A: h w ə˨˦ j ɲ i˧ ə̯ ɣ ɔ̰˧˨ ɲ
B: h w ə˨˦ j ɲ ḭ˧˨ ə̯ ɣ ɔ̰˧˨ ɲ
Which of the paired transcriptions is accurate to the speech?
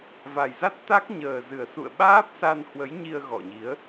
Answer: A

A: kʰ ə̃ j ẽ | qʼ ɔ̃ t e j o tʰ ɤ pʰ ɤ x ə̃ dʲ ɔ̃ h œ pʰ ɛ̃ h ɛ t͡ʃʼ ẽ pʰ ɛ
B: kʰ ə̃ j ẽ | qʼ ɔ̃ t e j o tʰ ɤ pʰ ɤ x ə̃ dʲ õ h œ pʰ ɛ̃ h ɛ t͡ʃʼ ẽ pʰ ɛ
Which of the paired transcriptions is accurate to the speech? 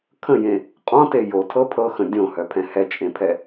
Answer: B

